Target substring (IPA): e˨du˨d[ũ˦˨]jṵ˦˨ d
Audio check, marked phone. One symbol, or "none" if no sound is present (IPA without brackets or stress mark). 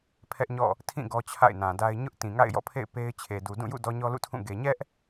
ũ˦˨